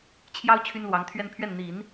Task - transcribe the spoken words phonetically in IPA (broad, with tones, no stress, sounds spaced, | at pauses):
t͡ɕʰ j ɑ˥ ʊ̯ t͡ɕʰ y˥ n l w ɑ˧˥ ŋ t̪ʰ ɥ ɛ˥ n pʰ ɥ ɛ˥˩ n n̪ i˨˩˦ n